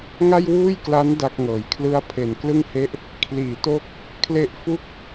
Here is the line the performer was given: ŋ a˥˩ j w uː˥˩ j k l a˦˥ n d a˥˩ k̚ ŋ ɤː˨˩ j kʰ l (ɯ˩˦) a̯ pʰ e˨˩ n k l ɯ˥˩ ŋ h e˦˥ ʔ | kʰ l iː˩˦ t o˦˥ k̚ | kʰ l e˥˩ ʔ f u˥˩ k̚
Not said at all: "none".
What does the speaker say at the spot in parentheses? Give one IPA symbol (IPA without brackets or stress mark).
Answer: ɯ˦˥